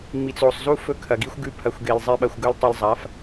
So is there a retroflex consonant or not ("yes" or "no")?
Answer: no